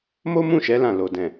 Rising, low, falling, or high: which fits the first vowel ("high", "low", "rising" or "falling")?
high